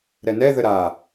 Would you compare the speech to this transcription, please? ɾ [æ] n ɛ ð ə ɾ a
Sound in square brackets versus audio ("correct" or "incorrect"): incorrect